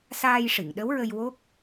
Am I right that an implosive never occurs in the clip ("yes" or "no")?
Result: no